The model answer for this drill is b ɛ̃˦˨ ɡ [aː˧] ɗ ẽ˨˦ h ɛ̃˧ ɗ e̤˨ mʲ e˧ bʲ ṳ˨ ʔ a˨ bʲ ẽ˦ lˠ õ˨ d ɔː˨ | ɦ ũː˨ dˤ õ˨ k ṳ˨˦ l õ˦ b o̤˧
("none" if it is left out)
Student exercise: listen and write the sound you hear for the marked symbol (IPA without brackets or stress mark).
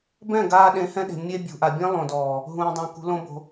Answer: aː˧